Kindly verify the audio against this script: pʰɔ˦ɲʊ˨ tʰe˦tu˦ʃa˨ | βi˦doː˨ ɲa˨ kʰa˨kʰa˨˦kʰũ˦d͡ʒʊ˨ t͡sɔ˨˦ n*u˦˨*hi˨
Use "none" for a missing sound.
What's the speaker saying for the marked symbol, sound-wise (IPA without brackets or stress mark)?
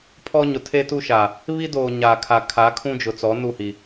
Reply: u˦˨